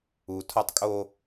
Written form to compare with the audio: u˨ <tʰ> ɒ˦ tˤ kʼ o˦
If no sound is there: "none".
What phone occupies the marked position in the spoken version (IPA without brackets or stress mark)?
tʰ